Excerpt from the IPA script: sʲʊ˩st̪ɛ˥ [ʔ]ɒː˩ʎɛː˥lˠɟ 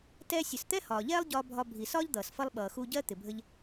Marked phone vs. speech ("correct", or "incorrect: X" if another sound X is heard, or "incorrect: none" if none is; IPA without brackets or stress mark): incorrect: h